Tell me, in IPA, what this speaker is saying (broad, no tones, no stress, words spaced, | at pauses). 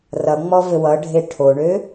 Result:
rʌŋ͡mɔ vɘwʌɖʱe ʈʰoɳø